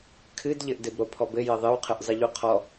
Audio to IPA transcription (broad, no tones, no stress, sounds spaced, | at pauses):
kʰ ɨ d ʎ ɘ ʔ d ɘ b ɾ o pʰ ɔ b ɘ j ɘ ðˤ ɨ w qʰ ɨ ʔ zˤ ɨ ʎ u qʰ ɔ